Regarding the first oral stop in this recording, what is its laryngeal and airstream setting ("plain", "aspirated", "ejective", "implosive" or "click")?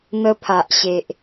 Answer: aspirated